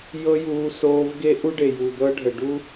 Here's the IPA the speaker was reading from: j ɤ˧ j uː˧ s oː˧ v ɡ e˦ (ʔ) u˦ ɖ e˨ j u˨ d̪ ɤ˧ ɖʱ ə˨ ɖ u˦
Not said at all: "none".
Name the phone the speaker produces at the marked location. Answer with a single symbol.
ʔ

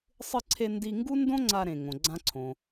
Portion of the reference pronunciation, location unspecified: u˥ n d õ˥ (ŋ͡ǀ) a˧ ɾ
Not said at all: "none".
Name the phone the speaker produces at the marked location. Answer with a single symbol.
ŋ͡ǀ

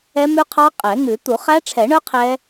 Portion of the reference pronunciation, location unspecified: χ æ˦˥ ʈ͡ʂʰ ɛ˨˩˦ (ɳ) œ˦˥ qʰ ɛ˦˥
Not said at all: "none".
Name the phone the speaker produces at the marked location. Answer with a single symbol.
ɳ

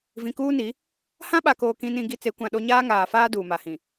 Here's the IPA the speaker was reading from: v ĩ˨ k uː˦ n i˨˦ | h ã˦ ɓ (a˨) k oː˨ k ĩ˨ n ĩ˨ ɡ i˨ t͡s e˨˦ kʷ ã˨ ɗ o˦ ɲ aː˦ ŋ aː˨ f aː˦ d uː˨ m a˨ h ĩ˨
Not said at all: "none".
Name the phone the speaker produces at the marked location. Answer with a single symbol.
a˨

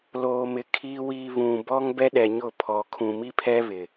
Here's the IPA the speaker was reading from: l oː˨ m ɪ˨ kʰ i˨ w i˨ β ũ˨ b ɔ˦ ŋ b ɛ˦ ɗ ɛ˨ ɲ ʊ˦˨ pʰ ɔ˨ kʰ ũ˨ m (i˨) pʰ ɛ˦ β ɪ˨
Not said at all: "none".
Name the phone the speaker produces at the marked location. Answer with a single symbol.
i˦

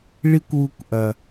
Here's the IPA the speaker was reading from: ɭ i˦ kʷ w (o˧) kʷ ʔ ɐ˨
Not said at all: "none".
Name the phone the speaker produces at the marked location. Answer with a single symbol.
u˧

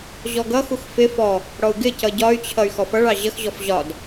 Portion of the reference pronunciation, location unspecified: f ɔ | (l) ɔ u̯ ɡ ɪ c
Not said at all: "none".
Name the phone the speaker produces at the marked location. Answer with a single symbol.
ɽ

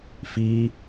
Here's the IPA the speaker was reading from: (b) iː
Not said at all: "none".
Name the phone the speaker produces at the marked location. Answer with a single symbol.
f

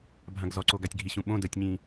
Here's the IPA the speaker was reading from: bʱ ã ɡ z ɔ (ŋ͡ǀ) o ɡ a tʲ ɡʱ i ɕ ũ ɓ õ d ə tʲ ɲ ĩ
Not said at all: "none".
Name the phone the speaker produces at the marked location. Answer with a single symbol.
ǀ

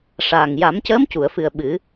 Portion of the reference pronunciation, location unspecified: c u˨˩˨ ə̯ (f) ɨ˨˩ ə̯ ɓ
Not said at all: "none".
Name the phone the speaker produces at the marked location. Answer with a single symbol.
f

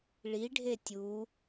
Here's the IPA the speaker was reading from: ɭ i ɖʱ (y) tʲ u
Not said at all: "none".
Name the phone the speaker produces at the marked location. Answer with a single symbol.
e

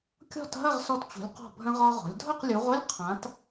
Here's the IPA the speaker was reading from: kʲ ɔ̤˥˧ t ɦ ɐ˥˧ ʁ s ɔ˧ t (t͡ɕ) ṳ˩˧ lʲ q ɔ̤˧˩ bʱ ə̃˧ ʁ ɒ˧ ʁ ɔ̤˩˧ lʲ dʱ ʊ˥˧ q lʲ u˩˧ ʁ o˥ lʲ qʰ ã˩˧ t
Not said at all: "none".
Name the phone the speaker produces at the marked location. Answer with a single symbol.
t͡ɕ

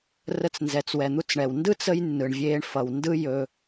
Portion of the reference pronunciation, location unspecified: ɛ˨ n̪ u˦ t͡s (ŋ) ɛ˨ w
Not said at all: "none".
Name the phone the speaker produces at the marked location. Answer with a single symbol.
ɳ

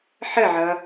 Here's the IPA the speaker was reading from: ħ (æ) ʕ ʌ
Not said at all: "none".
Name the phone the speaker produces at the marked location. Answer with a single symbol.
ə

